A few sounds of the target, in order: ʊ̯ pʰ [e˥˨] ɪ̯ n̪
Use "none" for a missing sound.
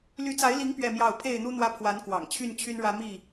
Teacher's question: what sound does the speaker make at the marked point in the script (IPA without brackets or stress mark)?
e˥˨